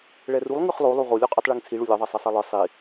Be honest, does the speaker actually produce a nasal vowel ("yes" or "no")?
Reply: no